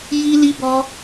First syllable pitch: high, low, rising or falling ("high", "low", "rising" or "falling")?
high